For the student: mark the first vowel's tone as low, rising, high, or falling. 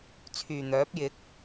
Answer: low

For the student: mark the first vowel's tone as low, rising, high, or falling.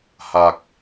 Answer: low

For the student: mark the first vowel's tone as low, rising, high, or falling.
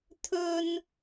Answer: high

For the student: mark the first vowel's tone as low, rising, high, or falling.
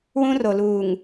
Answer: high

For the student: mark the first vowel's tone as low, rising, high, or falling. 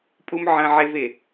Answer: high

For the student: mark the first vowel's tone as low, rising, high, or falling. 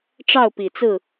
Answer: falling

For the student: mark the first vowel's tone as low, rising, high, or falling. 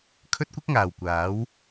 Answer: high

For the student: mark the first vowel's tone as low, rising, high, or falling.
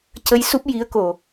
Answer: rising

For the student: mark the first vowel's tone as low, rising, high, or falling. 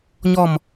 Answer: falling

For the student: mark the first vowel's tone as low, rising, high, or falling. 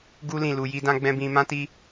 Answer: high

